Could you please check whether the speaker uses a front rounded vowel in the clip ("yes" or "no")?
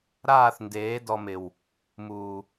no